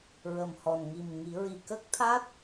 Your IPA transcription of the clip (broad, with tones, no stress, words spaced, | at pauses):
ɹə˨˩mhɔ˨˩n ŋi˨˩m ŋi˨˩˦ɹi˨˩ kə˦˥k̚t̪ʰa˦˥t̚